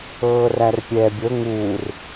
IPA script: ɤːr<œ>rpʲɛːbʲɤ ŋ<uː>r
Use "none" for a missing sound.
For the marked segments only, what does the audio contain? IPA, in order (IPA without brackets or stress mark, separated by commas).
æ, uː